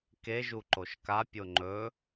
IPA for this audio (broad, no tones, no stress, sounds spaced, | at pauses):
k e ʒ u ǃ o ʃ k a pʲ o ŋ͡ǃ ɵ